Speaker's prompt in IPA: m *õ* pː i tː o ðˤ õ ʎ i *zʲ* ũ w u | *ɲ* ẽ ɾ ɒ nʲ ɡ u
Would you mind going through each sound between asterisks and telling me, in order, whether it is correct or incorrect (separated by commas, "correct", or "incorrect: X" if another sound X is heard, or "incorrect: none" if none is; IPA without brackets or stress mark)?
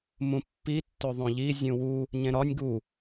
incorrect: ũ, correct, correct